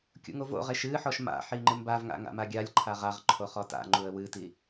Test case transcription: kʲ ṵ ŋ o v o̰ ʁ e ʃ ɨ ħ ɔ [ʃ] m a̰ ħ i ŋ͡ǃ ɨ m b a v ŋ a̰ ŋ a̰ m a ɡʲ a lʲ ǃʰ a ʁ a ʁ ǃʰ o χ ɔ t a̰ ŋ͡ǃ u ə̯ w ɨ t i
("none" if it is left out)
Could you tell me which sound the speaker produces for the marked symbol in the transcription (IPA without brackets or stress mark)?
ʃ